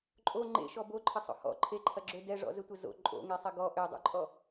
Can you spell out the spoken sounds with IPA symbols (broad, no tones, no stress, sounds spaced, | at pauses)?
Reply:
ǃʼ o ŋ͡ǃ ḛ ʃ ɔ b o ǃʰ ə sˤ o̰ h ɔ̰ ǃʰ e ǃʰ ɐ ɡ͡ǁ ø d ɛ ʐ ɔ̰ z ə tʷ ə z o̰ ǃʼ o̰ ŋ e sˤ ɐ ɡ ɔ ʔ ø dˤ o̰ ǃʼ ɔ